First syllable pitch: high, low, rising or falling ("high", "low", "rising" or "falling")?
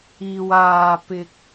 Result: low